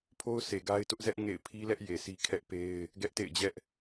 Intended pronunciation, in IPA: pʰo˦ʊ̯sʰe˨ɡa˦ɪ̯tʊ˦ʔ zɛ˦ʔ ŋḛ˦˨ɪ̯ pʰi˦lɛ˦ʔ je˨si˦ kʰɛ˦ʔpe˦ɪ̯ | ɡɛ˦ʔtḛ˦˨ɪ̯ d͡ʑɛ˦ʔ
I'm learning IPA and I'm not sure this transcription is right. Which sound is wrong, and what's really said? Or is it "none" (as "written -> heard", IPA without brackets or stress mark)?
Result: none